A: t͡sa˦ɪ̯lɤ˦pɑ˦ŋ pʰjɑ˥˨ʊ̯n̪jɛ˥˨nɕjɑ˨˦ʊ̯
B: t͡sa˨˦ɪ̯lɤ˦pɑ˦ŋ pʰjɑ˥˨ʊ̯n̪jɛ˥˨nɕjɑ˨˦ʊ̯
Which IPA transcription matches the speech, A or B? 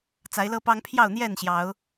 B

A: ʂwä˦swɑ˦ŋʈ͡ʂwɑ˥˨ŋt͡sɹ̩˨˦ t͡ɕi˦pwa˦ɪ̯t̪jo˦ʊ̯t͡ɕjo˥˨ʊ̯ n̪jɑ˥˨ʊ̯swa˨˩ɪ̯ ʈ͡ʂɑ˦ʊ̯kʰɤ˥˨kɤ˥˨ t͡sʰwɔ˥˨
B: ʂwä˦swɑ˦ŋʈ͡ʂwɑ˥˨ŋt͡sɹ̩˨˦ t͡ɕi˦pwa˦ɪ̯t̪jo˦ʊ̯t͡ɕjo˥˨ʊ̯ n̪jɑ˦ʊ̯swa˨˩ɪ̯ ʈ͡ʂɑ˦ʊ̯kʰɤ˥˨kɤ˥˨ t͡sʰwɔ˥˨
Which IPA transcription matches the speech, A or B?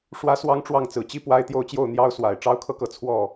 B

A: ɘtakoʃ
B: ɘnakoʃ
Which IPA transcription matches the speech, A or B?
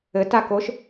A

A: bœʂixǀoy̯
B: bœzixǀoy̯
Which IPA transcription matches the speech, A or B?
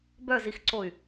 B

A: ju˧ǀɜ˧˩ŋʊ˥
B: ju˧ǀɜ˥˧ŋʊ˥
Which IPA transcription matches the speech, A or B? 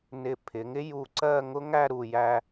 B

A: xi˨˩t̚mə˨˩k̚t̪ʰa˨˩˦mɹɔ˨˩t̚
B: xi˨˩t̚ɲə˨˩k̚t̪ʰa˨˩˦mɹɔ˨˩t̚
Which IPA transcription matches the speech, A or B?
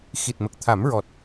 A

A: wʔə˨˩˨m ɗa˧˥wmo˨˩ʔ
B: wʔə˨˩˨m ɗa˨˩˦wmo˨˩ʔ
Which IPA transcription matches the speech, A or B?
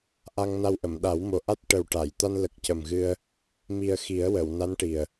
B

